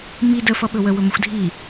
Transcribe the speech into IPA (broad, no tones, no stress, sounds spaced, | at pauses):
m i d ə f ʌ ɓ ɵ w ə w ɵ m ə xʷ dʱ i